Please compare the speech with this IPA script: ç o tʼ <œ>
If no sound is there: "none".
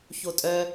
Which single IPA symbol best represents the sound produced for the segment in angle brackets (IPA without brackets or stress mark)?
œ